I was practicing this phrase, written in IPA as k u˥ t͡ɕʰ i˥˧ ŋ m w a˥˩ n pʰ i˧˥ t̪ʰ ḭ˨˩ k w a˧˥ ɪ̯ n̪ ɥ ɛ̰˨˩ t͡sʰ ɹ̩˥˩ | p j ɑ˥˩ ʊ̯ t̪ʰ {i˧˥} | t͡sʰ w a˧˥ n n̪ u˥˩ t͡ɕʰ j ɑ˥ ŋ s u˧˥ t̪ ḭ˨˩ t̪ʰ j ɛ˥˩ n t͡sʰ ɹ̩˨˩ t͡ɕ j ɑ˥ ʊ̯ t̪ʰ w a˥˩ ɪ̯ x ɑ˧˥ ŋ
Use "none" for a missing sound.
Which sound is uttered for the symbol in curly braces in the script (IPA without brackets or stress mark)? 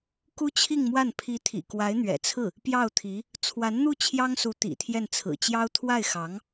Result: i˧˥